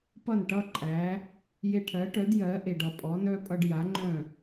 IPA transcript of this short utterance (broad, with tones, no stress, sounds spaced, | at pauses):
p ʌ˥˩ n ʈ ʌ˥ ǃʼ æ˩˥ | j e˧ ʈʰ ɜ˩˥ ʈ œ˩˥ d j ɜ˩˥ ʔ e˩ ɖ ʌ˩ pʼ ɔ˩˥ n œ˥ pʼ ʌ˧ ɖ j a˩˥ ŋ͡ǃ œ̃˥˩